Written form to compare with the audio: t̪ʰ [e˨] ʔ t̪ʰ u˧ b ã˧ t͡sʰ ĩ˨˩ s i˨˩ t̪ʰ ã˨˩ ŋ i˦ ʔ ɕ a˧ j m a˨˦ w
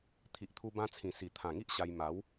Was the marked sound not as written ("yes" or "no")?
yes